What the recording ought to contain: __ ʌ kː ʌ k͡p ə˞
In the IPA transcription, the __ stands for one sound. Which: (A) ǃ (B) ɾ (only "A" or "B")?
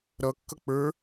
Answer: B